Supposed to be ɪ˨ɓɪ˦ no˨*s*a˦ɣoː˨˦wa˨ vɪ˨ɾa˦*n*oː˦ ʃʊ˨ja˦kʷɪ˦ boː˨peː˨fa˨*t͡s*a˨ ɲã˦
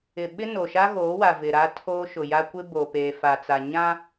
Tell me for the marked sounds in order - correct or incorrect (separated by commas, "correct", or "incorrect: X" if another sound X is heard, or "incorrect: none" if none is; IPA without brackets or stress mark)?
incorrect: ʃ, incorrect: tʰ, correct